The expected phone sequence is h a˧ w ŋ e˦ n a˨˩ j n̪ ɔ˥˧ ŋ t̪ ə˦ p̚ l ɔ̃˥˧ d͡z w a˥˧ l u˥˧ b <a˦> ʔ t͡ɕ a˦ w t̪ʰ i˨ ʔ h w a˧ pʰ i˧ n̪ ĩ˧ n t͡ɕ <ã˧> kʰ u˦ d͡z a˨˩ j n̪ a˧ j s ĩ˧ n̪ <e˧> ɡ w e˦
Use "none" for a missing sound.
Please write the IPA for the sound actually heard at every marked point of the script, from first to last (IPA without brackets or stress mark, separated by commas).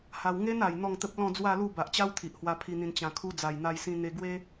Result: a˨, ã˧, e˧